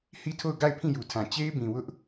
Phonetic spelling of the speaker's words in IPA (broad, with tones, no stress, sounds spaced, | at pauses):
h i˦˨ tʰ o˦˨ ʊ̯ ɡ a˦˨ ɪ̯ pʰ ĩ˦˨ j u˨ tʰ ã˨ t͡ɕ e˦ ɪ̯ b ĩ˨ w ʊ˦ ʔ